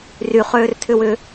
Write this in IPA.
ry χøːrtʰʏwʏ

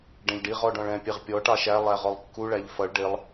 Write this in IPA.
ɖɛ̃ʎɖiʁ ɔɖɔ̃ɭɛ̃ pʲɛʁpʲɔ ʈɑʃæ lˠæʁɔlˠkːu ɭæʎfʌɭ ɖɪlˠ

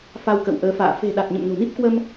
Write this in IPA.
fa˧wkə̰˧˨wʔəː˨˦fa̰ː˧˨ fe̤˨˩ ɗa˨˩t̚ ɲə̰˧˨mno̤˨˩ni˦˥p̚kwə˧m

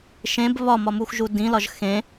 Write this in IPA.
ʃẽb βɒmɒmuxʒu dĩlɒʒ xẽ

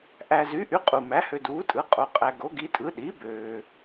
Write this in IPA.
ʔæ˨zy˩˥ʔy˩˥ qʼu˨ mæ˩˥hø˨duː˩˥tʼɯ˩˥ qʼo˨qʼæ˨ ɡo˩˥ɡi˩˥tʼɯ˩˥ ɗi˩˥ bøː˨

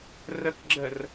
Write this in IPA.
rəkɡ͡ǁər

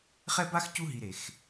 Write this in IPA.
χɛ˥ba˥xcu˦ɦi˨ ɾe˩x

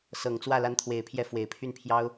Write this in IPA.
sɤ˨˩ŋt͡swä˥˩ la˧˥nt̪ʰwe˨˩ɪ̯pʰjɛ˧˥ fwe˨˩ɪ̯pʰy˥˩npʰjɑ˥ʊ̯

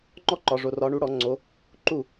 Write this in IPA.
ŋ͡ǃɔ˥ǃɒ˨ʐo˨ rɒ˨˦ɳu˨˦ɽɔ˨˩˦ ŋ͡ǀo˨˦ | ǃu˥˩

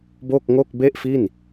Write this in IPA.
bo˥˩k̚ŋo˥˩k̚ be˥˩ʔfi˥˩n

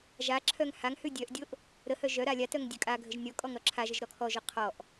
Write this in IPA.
ʒaǁʰœŋ haŋhʉ dʲœʔdʲoʔ | ɾəhœ ʒœ ɾalʲatœŋ dʲœkʼaɡʱəʒ nʲɔ kʼɔŋɾɔǁʰaʒəʒ ɾɔkʰɔʒo qʰɔʔ

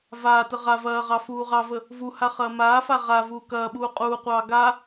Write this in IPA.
vaːtə ʁa vɐːʁɑ fuːʁɑvə | vuha χɐːmaːfa ʁa vuːkɐːɓuː qʼuːqʷɑː ɡa

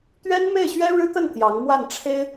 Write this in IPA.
t̪ɥɛ˥nme˥˩ɪ̯ɕɥɛ˥ ɻɻ̩˥t̪ə˥˩n t̪jɑ˧˥ŋmwa˥˩nʈ͡ʂʰe˥ɪ̯

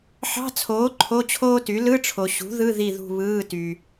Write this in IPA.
ħɑ̤˧˥˧t͡sʰoː˩˥ ǃʰo˧˥˧t͡ɕʰoː˥ty˩˥ lɯ˧˥˧ʈ͡ʂʰo˩ɕṳ˩˥ ðɯ˧˥˧ ði˦˨ðṳ˦˨βɯː˧˥˧ ty˩

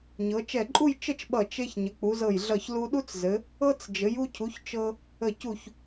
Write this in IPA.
ɲɤ˩˧t͡ʃɛ˧˩ǃʼu˥˧j t͡ʃə˥˧t͡ʃɓʌ˧˩ t͡ʃe˧ç ɲə˩˧k͡pu˩˧zɤ˧˩jɮʌ˧˩ç lu˧ɗu˥t͡szɘ˩˧ | ɤ˥t͡s d͡ʒɘ˩˧ju˧cʰu˩˧ç t͡ʃɤ˧ | ə˧˩cu˧˩ç

